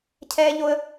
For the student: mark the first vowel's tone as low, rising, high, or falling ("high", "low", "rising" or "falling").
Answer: high